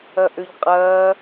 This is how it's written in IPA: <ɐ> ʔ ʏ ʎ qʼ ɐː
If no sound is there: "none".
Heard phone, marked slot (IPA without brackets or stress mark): ɐ